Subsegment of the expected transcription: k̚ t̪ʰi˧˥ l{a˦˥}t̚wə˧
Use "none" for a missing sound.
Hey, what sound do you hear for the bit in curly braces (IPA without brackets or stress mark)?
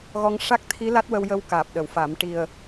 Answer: a˦˥